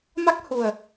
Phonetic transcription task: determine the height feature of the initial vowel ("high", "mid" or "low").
low